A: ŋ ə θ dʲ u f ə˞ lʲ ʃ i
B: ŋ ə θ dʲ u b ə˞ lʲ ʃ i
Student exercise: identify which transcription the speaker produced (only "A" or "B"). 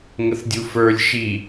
A